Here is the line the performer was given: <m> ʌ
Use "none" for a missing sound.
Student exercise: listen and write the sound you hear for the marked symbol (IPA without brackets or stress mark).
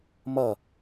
m